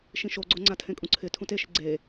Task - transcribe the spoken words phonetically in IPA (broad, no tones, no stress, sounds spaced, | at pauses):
ʃ ĩ ʃ o ɡ͡ǀ o ŋ͡ǀ a tʰ ẽ kʼ ũ ǀʰ ɪ tʰ ũ t e ʃ ɪ ɡ͡ǀ e